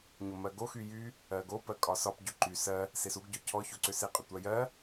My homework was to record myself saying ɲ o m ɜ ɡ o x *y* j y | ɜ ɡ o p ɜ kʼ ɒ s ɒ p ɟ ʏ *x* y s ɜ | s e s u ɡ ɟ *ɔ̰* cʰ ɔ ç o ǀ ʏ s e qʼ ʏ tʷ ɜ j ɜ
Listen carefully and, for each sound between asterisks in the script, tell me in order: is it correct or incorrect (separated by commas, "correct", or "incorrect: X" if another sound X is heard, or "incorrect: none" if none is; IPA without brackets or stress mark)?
correct, incorrect: ǃ, incorrect: ɔ